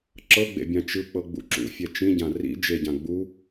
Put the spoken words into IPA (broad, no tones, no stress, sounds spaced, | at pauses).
ǁ ɤ ɡ͡b ḛ bʲ ã t͡ʃ ɯ k͡p ɤ ɡ͡b ṵ ǁ ṵ fʲ ɛ t͡ʃ ĩ ɟ ã r ḭ d͡ʒ e ɟ ã ɡ͡b u